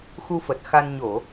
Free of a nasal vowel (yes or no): yes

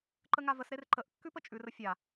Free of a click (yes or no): no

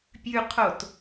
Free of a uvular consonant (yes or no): no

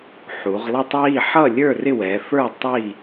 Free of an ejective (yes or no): yes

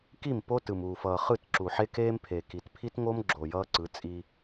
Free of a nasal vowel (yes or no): yes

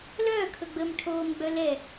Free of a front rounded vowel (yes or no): no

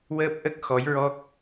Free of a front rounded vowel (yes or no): yes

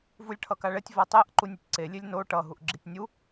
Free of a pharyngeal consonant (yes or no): yes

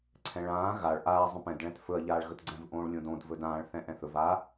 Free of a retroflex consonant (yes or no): no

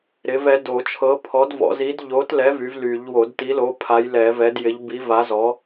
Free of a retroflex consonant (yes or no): yes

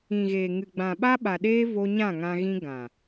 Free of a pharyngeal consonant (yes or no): yes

